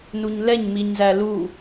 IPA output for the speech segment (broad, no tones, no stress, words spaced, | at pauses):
nuɲlɛɲ miɲzælu